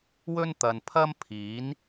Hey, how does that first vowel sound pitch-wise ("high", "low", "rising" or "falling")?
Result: high